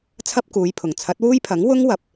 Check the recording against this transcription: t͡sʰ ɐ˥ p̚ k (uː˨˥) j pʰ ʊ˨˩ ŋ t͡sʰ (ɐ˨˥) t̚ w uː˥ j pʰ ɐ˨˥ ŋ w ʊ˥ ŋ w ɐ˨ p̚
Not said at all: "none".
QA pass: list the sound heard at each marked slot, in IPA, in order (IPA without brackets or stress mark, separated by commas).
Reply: uː˨˧, ɐ˨˥